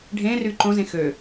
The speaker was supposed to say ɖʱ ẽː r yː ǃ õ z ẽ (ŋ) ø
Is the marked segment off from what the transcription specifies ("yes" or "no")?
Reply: yes